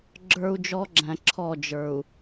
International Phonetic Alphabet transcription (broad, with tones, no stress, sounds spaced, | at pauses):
ɡ͡ǁ ə˞˦ u̯ d͡ʒ ɔ˦ ɡ͡ǁ æ̃˨ ǁʰ ɔ˦˨ d͡ʒ ə˞˨ u̯